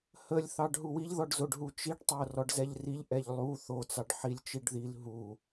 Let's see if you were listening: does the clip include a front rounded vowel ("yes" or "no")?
no